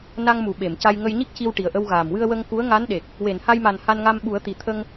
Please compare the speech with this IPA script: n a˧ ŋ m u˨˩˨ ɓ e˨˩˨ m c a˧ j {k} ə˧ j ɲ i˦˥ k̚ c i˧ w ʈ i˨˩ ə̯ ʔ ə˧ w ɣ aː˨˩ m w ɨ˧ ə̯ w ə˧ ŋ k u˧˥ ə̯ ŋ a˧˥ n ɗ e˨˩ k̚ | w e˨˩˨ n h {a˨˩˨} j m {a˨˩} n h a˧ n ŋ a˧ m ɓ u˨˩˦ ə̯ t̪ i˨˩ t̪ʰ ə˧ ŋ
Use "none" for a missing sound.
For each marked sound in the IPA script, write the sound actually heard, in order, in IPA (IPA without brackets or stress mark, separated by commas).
ŋ, a˧, a˨˩